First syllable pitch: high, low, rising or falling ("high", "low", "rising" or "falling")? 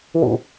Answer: low